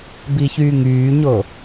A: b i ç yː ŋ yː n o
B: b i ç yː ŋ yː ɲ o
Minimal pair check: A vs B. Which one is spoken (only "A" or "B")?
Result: B